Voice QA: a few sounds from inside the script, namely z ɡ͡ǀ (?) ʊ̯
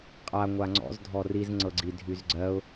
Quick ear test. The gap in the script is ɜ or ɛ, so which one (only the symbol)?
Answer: ɜ